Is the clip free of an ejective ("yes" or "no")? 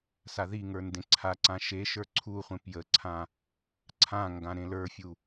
yes